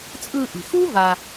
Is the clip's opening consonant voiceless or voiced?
voiceless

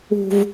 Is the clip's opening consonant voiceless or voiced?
voiced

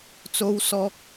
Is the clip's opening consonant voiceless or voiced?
voiceless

